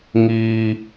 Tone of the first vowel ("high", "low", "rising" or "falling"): high